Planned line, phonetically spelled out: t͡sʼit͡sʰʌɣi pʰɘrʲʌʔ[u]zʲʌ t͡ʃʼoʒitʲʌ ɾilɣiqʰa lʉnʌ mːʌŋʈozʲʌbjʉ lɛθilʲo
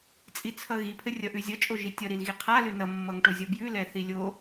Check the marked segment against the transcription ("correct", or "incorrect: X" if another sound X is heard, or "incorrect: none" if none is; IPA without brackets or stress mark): incorrect: ʉ